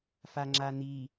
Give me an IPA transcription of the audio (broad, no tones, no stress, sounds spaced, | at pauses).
f a ŋ͡ǁ a n̪ i